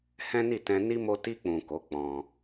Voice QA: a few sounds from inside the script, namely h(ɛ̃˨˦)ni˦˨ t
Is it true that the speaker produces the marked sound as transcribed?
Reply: no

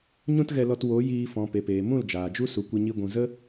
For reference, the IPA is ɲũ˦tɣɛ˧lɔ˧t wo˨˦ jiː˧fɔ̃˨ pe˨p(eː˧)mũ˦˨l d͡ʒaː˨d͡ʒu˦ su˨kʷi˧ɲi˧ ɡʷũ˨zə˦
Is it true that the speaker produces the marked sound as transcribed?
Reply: no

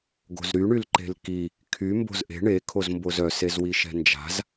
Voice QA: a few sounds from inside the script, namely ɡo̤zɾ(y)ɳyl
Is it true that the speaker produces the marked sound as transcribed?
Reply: yes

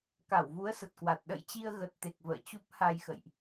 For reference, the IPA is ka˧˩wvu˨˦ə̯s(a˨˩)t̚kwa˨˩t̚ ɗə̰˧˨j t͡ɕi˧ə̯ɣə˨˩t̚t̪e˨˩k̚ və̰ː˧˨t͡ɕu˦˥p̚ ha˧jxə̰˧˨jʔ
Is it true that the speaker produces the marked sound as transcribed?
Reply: no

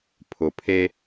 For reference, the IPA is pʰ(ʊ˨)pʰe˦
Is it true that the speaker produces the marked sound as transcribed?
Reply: yes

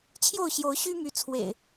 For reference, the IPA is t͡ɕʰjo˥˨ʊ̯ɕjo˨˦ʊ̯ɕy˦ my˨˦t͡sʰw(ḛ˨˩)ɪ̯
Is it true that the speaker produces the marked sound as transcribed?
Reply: yes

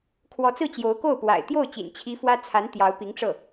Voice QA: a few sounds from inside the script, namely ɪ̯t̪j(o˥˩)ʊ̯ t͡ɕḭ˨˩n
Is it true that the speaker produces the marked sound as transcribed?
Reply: yes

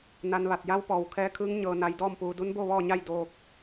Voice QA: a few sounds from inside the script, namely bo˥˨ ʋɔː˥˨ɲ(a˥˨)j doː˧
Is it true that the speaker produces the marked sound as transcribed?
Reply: yes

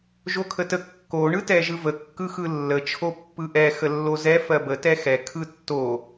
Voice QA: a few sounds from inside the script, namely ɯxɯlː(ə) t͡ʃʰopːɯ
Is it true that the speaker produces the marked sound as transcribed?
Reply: yes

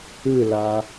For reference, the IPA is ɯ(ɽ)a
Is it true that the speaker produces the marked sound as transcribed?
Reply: no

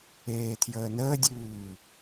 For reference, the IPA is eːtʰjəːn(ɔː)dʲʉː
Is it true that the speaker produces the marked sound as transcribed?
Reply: no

